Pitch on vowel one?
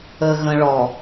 low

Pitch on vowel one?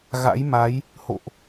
rising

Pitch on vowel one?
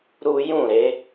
high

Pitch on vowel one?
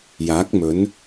rising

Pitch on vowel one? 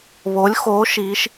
rising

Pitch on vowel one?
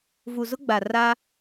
low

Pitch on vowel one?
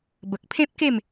low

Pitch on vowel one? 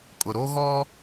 low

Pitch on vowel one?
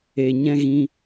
low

